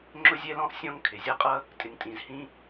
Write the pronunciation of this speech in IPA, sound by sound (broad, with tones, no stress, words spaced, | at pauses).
ŋ͡ǁʊ˥zʲɛ˥lɔ̃˥ʔ sʲɔ̃˥ŋ kʰɪ˩zʲʌ˥qʼʌ˥ | tʼɪ˩ŋtʼĩ˩z hĩ˥